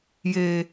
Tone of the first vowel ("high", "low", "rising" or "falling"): low